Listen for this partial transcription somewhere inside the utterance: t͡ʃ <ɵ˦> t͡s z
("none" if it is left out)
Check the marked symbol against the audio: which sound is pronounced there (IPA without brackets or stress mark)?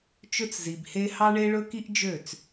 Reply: ɵ˦